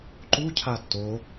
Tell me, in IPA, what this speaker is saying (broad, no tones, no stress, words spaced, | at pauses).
ǃucʰa to